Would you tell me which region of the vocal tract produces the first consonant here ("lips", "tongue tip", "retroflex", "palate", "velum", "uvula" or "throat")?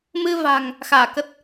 lips